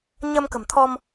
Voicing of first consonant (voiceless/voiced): voiced